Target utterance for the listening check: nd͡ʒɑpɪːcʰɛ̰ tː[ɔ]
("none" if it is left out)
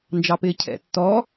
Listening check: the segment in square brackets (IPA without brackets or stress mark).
ɔ